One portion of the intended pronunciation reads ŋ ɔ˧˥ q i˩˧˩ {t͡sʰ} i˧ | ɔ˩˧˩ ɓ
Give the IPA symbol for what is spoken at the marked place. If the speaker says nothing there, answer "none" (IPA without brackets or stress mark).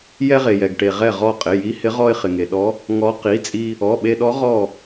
t͡sʼ